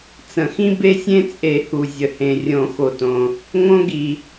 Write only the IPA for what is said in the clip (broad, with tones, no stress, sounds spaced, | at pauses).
t͡s ə̃˨˩˦ x ĩ˦ b e˦ sʲ ẽ˦ t͡sʼ e˨˩˦ h u˩ zʲ ə˩ h ẽ˩ rʲ õ˨˩˦ x o˩ t õ˩ | ŋ õ˦ ɡ i˩